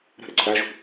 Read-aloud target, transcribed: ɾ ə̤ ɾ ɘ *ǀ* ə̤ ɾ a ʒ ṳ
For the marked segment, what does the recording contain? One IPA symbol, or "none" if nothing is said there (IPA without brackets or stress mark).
ǀ